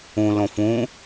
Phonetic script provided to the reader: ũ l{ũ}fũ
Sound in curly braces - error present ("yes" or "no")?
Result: yes